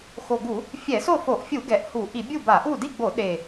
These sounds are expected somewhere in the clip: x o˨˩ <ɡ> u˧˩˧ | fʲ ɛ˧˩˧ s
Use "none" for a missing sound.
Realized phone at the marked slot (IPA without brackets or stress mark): ɡ